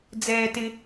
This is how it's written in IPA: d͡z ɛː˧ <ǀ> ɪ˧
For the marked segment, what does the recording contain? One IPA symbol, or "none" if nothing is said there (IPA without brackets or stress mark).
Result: t